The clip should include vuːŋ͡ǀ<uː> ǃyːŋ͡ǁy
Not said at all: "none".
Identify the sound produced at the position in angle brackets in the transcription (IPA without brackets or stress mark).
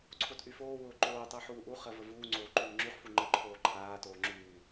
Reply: oː